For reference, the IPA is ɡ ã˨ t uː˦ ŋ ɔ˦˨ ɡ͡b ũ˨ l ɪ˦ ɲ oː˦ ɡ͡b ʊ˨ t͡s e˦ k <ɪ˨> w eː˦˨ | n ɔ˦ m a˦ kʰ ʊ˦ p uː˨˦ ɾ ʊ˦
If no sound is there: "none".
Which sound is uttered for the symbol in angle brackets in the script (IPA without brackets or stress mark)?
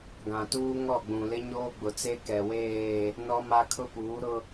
ɛ˨